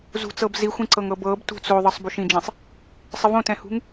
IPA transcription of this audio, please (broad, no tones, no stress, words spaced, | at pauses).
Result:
zṳt͡sɤb zixʷĩǀɤŋ ɤbɤb tṳt͡s oðˤɤsˤ buʃĩd͡ʒĩsˤ | sˤɪvõtɛ̃hṳŋ